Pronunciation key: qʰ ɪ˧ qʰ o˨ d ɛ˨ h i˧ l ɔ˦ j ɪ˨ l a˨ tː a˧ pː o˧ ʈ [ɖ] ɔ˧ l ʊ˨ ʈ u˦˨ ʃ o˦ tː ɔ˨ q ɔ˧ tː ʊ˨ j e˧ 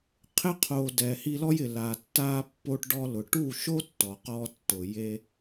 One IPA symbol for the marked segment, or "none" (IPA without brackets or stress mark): ɖ